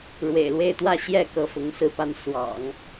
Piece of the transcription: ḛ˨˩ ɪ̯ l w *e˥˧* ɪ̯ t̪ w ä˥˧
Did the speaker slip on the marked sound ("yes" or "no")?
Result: no